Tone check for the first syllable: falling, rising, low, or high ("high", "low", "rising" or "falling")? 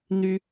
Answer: high